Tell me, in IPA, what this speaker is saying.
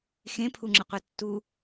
x ẽ pʰ u ŋ͡ǁ ɯ qʷ ɛ tː u

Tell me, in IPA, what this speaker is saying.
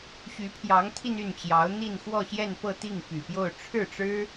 ɕ y˧˥ pʰ j ɑ˧˥ ŋ t̪ʰ i˧ n y˥˩ n t͡ɕ j ɑ˧˥ ʊ̯ n̪ i˥˧ n x w ɔ˥˧ ɕ j ɛ˥˧ n p ɤ˥˧ t̪ i˥˩ ŋ p y˨˩ p j o˥˧ ʊ̯ ʈ͡ʂʰ ɻ̩˥˩ ʈ͡ʂ ɻ̩˥

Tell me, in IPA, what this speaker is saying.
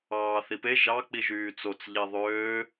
ɑː θ i p e ʒ ɑ k͡p i ʒ yː t͡s o t͡s ʎ e ðˤ øː

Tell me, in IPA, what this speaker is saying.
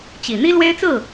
t͡ɕ i˨˩ n̪ i˥ l w e˥ ɪ̯ t͡s ɹ̩˥˩

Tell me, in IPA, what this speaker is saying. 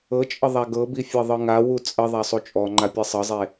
ɤ t͡ʃʼ ə ðˤ a ɡ ɤ b i fʲ ɤ ðˤ ɯ ŋ a w u t͡sʼ ə ðˤ a sˤ u t͡ʃʼ ɔ ŋ͡ǃ a pʲ e sˤ ɤ zˤ e

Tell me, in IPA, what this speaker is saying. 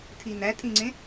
tʰ i n æ tʼ ĩ ŋ͡ǀ ẽ

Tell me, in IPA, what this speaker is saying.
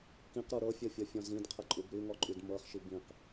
k ĩ q ɾ u ɾ ɤ fʲ ɤ fʲ ɔ fʲ ɔ̃ z ĩ d qʰ ə ǃʼ u b ɾ y ŋ ɔ ǃʼ y d m ɤ χ ʃ i b ĩ q

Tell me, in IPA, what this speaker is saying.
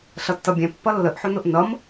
ɬ ʌ tː ʌ bʲ ɛ̃ pː ʌ lː ə ʔ ħ ʊ n ʊ ʔ n ʌ m

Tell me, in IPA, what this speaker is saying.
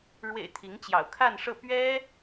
ɻ w ḛ˨˩ ɪ̯ t̪ʰ i˧˥ ŋ t͡ɕ j ɑ̰˨˩ ʊ̯ kʰ a˥˧ n ʂ ɤ˥˩ p ɥ ɛ˥

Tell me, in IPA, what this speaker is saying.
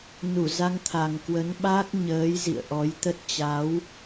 n u˧˩ z a˧ ŋ t̪ʰ a˨˩ ŋ k w ə˨˦ n ɓ aː˦˥ k̚ ɲ əː˨˦ j z ḭ˧˨ ə̯ ʔ ɔ˨˦ j t̪ ə˦˥ t̚ t͡ɕ a˨˦ w

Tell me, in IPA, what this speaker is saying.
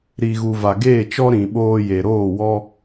ɾ i˨ ɣ u˨ v a˨ ɡ eː˦˨ t͡ʃ ɔ˦ ɾ ĩ˨ ɓ oː˧ j e˨ ɾ oː˦˨ w ɔ˦

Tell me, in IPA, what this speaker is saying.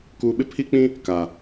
k uː˨ ɓ ɪ˦ pʰ i˦ k͡p ĩ˦ | k a˨

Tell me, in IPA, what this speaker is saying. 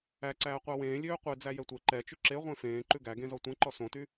æ ǀ æː qʷ ɑ w ẽː lʲ øː qʷ e d͡z æ j ɛ tʷ e ǃ ɛ t͡ʃ y ǁ e ʁʷ ẽ f ẽː ǃ ʉ ɡ æ ɡ ẽ z ɔ tʷ ɛ̃ ǃ ɔ s õ t y

